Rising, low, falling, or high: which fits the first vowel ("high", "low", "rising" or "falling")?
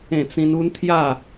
falling